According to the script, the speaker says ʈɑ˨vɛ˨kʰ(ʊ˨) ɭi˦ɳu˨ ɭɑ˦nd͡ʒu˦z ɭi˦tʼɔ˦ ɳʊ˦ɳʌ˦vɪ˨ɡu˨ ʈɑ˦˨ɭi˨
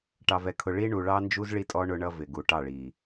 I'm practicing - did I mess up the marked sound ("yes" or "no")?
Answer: no